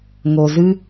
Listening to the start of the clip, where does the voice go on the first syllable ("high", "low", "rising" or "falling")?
low